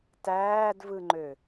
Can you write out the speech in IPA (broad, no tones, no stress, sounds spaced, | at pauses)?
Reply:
t æː d v ɯ ŋ͡ǃ ø